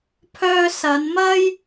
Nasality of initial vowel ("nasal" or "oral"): oral